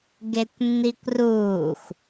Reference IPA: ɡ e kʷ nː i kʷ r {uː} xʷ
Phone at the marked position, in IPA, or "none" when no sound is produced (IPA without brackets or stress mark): uː